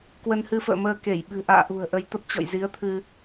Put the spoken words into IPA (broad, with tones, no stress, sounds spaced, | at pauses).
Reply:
k w ə˧ n h ɨ˧ f ə̰ː˧˨ m əː˧ k e˧˩ j ɓ ɨ̤˨˩ ʔ a̰ː˧˨ ʔ ṳ˨˩ ə̯ ʔ ə˧ j t̪ ə˦˥ p̚ t͡ɕ ɔ̰˧˨ j z i˨˦ ə̯ t̪ʰ ɨ˧